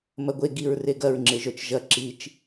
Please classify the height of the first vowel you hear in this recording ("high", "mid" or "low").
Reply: low